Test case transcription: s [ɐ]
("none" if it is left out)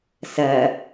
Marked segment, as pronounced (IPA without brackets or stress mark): ɐ